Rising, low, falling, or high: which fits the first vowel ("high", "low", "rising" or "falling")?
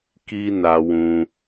high